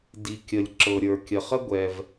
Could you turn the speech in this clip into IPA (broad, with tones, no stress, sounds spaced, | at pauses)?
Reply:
d i˩ kʲ ə˩ lʲ ǁ ɤ˩ ɾʲ ə˞˩ kʲ ə˩ χ ə˥ ɡʷ ɛ˩ v